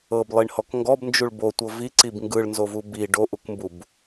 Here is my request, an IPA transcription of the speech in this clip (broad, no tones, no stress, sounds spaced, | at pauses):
ɤ b lˠ i ɳ h ɔ k ŋ ɡ ɔ b n d͡ʒ u ɭ b o tʷ ɤ v i ǀ i b ŋ ɡ ɯ ɭ n z o v u b i ɖ o ʔ u k m b u b